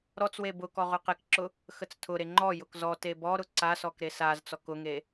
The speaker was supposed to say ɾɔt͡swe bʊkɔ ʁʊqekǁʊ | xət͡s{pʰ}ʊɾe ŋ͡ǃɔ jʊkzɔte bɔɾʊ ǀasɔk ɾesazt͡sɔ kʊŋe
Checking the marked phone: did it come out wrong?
yes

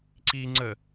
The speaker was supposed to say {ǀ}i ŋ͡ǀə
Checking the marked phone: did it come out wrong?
no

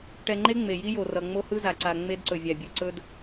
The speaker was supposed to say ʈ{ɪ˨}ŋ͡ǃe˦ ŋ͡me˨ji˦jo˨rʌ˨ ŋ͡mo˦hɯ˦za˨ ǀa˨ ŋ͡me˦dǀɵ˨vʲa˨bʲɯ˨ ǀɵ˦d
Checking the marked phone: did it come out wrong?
yes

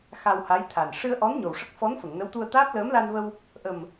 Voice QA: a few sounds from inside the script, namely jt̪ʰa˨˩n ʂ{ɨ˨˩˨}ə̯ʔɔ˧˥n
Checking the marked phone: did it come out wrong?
yes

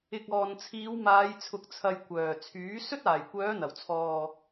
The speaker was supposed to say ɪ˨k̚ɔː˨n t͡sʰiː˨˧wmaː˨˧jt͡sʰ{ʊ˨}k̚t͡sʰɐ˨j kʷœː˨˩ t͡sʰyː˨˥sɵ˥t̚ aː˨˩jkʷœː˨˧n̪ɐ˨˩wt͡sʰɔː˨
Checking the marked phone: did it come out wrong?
no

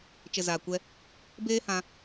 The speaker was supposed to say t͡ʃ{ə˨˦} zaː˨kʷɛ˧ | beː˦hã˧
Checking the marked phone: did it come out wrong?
yes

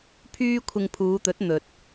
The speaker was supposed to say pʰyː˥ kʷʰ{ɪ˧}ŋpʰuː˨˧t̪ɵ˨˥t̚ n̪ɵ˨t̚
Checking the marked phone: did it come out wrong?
no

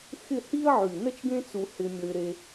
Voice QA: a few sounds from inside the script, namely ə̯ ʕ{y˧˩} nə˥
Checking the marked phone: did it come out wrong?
no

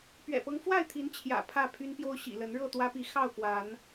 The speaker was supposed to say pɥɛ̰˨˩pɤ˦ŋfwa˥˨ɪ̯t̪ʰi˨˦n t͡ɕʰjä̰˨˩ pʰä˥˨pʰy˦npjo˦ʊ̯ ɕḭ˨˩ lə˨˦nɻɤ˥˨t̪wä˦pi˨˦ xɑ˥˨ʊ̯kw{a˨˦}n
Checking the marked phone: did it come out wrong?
no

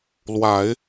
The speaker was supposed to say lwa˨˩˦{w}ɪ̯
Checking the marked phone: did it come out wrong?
yes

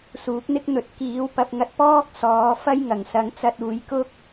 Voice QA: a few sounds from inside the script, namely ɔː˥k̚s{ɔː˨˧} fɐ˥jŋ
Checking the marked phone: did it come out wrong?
no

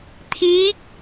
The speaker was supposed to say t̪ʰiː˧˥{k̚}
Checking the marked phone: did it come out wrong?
no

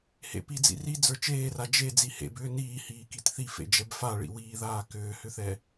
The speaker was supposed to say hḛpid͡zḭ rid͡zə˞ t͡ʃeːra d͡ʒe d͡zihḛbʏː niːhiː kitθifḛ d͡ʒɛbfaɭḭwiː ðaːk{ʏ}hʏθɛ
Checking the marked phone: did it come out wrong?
yes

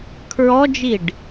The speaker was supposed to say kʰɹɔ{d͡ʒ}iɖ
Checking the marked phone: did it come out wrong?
no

